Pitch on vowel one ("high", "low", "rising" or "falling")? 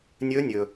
rising